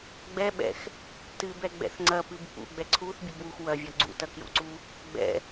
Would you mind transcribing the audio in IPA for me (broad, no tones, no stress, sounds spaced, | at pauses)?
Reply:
ɡ͡b ɛ ɓ ɛ̰ x | t ɨ b ɛ ɡ͡b ɛ̰ θ ŋ͡ǀ ɐ p ɨ b p ṵ ɡ͡b ɛ ǀʰ u θ bʲ ɨ b w u x w ɐ vʲ ɔ ɡ͡ǀ ṵ t ɐ k j ṵ ǀ u | ɡ͡b ɛ̰